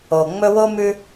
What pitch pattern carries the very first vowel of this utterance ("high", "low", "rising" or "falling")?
low